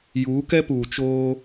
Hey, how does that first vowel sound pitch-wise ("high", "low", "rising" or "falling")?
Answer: rising